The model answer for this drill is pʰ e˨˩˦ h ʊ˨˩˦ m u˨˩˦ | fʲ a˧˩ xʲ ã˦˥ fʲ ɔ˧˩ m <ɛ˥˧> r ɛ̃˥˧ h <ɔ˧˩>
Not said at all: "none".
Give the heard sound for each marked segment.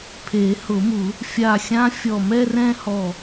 ɛ˥˧, ɔ˧˩

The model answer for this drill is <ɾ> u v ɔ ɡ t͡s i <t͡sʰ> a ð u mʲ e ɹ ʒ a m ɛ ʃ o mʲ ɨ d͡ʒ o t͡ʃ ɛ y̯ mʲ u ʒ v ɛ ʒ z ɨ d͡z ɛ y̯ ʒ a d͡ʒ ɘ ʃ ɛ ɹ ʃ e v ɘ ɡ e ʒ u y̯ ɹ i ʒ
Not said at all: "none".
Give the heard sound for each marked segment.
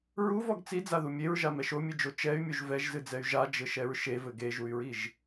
ɹ, d͡z

